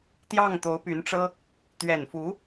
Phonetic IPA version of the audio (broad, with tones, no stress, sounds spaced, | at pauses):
t̪ j ɑ˥˩ ŋ t̪ o˧˥ ʊ̯ p y˧˥ n ʈ͡ʂ ɤ˥ | t̪ ɥ ɛ˨˩ n f u˧˥